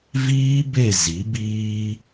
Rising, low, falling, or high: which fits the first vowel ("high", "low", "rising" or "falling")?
high